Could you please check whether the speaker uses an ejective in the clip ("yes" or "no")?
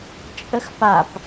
yes